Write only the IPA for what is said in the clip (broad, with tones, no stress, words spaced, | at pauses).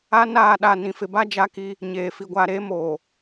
a˦naː˦˨ɗa˦˨ nĩ˨fɪ˨ba˦ d͡ʒa˦ki˦ | ɲeː˨ fi˨ɡʷaː˨ɾeː˦ moː˨